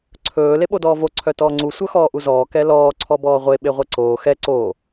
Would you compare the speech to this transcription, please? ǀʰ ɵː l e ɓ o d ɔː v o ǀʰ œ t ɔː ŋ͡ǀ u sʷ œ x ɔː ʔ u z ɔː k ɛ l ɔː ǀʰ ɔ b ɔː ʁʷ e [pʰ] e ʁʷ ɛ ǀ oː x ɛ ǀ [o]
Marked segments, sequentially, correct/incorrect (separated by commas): incorrect, incorrect